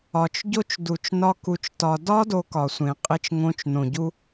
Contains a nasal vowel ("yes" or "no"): yes